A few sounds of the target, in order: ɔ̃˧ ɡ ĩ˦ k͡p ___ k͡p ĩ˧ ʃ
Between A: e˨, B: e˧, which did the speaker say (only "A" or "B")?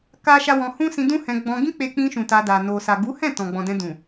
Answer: B